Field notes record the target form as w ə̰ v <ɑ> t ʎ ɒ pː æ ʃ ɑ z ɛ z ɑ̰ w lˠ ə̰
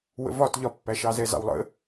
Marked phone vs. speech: incorrect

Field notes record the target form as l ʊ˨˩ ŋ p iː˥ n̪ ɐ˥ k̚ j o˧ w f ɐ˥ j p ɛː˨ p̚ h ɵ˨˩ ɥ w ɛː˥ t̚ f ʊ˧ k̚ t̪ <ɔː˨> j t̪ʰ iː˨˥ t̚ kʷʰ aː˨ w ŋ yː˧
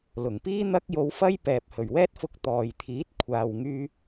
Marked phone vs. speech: correct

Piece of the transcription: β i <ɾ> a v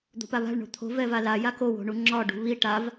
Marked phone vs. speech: incorrect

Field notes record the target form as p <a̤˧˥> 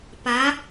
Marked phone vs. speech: incorrect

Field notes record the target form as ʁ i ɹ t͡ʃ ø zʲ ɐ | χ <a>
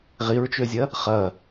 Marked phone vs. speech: incorrect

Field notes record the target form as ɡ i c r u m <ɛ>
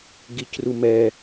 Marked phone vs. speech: correct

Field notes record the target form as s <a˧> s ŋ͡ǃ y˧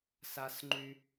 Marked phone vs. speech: correct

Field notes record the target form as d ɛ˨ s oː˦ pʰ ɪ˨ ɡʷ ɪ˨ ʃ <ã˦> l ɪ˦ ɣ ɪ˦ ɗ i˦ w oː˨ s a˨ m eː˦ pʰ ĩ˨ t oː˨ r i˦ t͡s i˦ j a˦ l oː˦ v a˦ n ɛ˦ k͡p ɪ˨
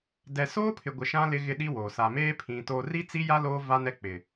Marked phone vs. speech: correct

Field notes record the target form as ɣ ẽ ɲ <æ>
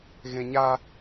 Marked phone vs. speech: incorrect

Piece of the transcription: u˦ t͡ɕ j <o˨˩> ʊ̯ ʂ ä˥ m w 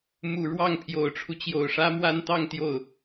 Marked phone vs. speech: correct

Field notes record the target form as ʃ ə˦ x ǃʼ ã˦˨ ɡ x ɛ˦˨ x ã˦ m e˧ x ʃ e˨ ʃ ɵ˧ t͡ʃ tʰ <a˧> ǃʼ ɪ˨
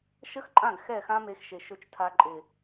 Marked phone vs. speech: correct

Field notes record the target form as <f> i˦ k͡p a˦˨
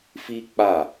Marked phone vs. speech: correct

